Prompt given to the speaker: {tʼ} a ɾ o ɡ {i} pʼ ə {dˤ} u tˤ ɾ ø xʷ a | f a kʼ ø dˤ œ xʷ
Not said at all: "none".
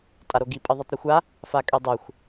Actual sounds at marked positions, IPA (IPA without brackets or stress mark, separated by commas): tʼ, i, ðˤ